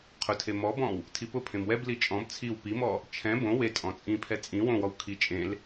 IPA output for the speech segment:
qʰʊtʰe mɔbɔ̃w | tʰipʊpʰẽm wɛbli t͡ʃʼɔ̃b t͡sʰiw pimɔ | t͡ʃʰɛ̃ bõ we tʼɔ̃t͡sʼĩpʰɛ t͡sʼĩ wõwɔw kʰi t͡ʃʼẽl

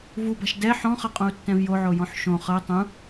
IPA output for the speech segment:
vuba̤ʃ dɛ ħɔ̃χɤqʼõu̯tːɛ̃v joʕojɔ̃ħ ʃõ χɤ tˤũ

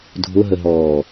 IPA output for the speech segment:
dʱʊɦəɦɔː

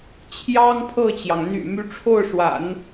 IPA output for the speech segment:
t͡ɕʰjɑ˥ŋpʰɤ˥˩t͡ɕjɑ˩ŋ n̪y̰˨˩ my˧˥ʈ͡ʂʰo˥˩ʊ̯ʂwa̰˨˩˦n

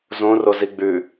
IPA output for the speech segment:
zõ roziɡ͡bʉ

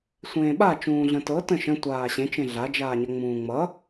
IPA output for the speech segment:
sʷẽːɓa t͡ʃũːɮə̃tɤ tə̃ʃə̃ tʷaːɕẽ t͡ʃẽɮad͡ʒaːɲʌ ŋ͡mũːŋ͡mʌ

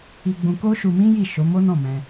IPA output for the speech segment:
i˧ɡ͡bũ˧ ko˦ʃu˧mĩ˦ ji˦˨ ʃo˨˦mo˦nɔ̃˦˨ mɛ̃˧

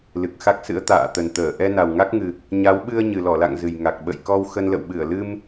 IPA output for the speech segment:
lɨ˨˩k̚xa˦˥k̚sɨ̰˧˥ə̯ t̪a̰ː˧˨ t̪ə˨˩nt̪əː˧˩ ʔɛ˧ na˨˩wŋa˦˥k̚ŋɨ˨˩ | ɲa˨˦wɓɨ˧ə̯ ɲɨ˨˩lɔ˧˩la̰˧˨ŋ zɨ˨˩jŋa˨˩k̚ ɓə̰˧˨jkɔ˧w xə˧nlə̰˧˨w ɓɨ˧˩ə̯lɨ˧m

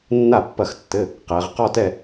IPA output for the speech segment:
nːa˥˩pːɐ˥˩xtːɘ˧˥˧ | qɛ˨˦ʁ qɔ˥˧tɛ˥˧

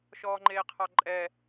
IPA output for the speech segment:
ʃɔːŋ͡ǃeːqʰɑǃʼɛ

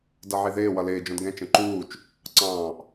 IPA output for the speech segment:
dʌʕiðɪː wʌlɪː d͡ʒɔ̃dɡɛ̃ t͡ʃə̃ǃuːt͡ʃ | ǀɑ̃ːʔ

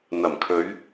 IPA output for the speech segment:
n̪ɐ˨˩mkʰɵ˨˧ɥ

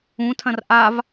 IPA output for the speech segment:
ũtʰɐ̃r ʔav

